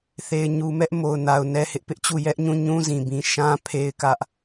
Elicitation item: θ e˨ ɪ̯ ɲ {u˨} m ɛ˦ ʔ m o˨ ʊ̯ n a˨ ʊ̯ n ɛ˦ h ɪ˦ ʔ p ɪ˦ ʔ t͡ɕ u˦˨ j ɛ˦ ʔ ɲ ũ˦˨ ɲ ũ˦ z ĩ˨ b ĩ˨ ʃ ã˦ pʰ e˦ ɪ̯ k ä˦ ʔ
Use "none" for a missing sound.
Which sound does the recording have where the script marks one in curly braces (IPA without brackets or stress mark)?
u˨